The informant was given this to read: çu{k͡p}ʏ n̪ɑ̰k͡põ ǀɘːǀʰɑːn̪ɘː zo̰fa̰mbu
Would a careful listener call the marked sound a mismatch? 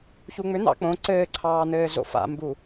yes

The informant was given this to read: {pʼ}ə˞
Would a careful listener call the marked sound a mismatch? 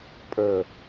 no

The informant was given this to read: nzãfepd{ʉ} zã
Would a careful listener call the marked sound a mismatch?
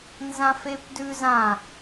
no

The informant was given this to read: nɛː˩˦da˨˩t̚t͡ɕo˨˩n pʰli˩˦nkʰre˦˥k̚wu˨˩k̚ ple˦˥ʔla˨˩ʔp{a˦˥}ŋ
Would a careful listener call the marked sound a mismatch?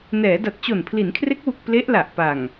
yes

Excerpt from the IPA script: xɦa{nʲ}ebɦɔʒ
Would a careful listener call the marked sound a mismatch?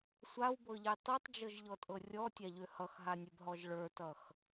no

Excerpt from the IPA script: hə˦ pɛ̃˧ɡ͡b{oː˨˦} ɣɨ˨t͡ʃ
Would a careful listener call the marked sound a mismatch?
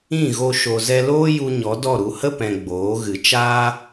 no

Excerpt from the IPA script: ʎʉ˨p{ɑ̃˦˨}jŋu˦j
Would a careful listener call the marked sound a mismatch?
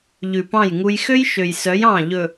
no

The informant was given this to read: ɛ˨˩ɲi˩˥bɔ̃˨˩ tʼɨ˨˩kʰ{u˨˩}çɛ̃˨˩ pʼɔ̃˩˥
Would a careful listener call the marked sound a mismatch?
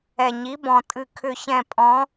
yes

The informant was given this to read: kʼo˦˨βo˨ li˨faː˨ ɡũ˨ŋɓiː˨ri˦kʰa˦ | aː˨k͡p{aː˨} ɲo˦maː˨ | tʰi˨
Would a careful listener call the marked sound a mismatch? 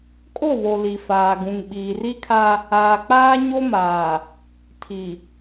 yes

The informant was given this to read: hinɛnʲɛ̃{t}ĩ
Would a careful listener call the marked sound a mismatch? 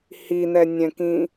yes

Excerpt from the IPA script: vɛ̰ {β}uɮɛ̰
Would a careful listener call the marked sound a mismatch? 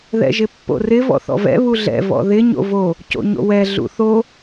no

